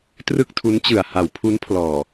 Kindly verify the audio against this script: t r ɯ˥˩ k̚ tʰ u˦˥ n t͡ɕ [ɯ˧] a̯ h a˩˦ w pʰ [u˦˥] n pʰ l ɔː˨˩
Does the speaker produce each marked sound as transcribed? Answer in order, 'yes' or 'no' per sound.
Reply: no, yes

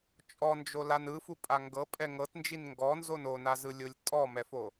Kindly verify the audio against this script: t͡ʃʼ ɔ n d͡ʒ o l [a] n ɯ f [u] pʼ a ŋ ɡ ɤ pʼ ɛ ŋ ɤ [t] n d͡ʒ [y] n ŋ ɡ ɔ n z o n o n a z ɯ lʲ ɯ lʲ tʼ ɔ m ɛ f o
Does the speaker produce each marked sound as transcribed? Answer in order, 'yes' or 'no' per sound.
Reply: yes, yes, yes, no

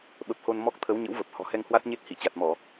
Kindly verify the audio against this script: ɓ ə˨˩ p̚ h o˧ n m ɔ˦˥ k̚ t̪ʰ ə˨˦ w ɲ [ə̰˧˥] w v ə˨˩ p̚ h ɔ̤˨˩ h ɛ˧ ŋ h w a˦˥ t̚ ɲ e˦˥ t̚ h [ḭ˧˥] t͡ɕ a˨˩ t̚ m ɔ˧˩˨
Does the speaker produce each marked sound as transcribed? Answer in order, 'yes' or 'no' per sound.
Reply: yes, no

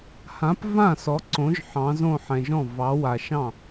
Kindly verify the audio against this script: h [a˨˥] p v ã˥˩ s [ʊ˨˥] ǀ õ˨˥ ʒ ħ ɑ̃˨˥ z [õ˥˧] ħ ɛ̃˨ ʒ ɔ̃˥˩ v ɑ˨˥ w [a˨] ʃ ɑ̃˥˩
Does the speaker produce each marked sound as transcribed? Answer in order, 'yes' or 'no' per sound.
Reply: no, no, yes, yes

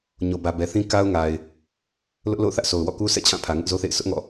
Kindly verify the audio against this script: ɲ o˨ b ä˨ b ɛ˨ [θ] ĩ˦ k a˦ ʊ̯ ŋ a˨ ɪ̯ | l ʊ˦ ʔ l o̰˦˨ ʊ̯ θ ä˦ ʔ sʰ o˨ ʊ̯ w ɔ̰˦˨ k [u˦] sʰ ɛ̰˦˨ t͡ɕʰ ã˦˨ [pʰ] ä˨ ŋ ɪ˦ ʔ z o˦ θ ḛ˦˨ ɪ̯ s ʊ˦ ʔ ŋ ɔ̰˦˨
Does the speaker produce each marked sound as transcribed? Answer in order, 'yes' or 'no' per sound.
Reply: yes, yes, yes

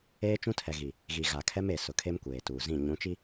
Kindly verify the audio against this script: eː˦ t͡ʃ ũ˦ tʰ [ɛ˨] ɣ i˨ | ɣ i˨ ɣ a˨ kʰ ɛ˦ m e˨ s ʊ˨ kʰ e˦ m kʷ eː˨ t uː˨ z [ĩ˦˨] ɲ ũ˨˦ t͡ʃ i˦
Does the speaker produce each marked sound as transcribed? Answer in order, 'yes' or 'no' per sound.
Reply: yes, yes

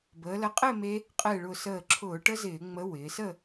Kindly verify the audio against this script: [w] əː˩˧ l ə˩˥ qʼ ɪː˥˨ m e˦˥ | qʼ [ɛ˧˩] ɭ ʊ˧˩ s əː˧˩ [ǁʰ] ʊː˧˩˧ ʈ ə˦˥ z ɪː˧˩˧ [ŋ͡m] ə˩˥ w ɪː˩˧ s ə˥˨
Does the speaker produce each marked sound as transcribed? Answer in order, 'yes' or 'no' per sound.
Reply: no, no, yes, yes

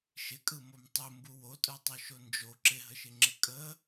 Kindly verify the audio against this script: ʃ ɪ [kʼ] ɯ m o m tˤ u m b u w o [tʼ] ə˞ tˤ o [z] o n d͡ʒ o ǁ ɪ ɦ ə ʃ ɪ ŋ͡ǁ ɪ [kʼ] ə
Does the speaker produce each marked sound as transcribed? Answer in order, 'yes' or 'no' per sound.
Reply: yes, yes, no, yes

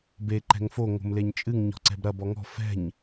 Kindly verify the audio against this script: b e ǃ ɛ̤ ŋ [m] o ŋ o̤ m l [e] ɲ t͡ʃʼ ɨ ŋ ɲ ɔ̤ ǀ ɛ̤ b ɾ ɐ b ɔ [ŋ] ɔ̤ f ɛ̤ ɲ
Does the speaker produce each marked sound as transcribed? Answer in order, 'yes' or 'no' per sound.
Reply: no, yes, yes

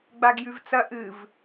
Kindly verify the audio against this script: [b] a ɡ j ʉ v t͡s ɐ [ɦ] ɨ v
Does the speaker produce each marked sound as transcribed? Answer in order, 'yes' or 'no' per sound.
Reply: no, no

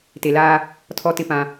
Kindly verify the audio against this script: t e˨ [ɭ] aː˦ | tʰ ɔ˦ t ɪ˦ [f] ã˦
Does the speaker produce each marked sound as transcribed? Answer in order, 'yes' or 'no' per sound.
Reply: no, no

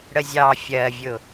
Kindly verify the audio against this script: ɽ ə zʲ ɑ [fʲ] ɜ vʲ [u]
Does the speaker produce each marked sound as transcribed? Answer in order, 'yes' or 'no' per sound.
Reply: yes, no

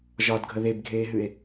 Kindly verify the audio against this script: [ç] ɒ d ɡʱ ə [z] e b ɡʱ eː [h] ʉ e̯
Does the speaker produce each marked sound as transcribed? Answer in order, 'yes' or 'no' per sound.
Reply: no, no, no

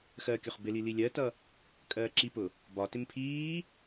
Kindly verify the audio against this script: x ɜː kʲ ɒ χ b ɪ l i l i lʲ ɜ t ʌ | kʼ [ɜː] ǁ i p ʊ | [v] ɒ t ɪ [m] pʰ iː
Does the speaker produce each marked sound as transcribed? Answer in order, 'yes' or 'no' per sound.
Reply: yes, no, yes

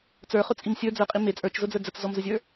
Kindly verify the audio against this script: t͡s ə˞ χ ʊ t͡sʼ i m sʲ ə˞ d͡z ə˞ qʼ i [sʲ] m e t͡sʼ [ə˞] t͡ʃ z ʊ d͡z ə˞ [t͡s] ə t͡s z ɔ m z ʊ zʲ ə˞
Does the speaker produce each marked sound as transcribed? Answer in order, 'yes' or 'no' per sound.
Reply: no, yes, no

